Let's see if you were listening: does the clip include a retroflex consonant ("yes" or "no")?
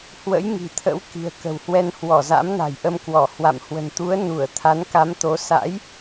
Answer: no